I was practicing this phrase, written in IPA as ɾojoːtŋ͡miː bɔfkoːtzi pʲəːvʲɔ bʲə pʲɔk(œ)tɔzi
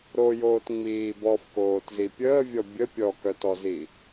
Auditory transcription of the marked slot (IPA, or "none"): œ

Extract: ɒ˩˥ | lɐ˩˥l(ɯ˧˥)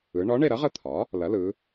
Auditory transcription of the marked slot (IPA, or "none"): ɯ˩˧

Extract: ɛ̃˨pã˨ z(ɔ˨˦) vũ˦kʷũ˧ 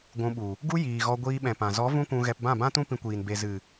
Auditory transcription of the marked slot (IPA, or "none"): ɔ˨˦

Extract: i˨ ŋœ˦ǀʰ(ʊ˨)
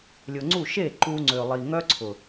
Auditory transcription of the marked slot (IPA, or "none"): ʊ˨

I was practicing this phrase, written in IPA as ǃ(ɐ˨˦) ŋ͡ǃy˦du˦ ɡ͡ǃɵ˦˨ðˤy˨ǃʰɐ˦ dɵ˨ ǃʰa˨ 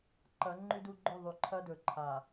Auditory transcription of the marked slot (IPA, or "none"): ɐ˨˦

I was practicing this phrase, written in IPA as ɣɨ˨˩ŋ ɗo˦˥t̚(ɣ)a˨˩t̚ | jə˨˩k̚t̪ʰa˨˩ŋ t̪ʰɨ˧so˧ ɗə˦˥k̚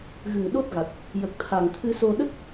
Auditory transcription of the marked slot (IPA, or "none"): ɣ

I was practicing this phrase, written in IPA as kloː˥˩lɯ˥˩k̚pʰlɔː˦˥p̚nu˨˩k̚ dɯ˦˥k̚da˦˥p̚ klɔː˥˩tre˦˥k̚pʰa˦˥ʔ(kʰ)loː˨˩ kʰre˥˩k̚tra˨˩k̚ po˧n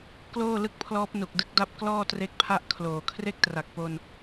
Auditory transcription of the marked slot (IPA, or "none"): kʰ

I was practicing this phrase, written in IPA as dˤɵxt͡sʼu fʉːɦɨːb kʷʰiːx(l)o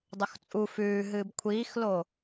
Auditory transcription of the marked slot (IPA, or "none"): l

